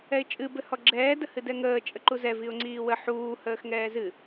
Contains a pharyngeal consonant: yes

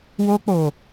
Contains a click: no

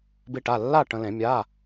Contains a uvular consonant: no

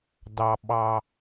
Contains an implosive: yes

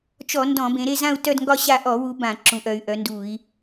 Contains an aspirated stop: no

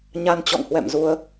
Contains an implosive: no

